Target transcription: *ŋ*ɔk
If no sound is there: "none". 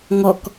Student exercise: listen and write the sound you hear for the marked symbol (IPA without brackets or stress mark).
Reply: ŋ